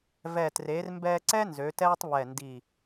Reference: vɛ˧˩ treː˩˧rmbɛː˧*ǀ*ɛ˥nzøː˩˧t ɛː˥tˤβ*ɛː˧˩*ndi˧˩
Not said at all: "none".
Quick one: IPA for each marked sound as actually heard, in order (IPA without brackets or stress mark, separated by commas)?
ǀ, ɛ˧˩